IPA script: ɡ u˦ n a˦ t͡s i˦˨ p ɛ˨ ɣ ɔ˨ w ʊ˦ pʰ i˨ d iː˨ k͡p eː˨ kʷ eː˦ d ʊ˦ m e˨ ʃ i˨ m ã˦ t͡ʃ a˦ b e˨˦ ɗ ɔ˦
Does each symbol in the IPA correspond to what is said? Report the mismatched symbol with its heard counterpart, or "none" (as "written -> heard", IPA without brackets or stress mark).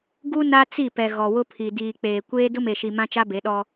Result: none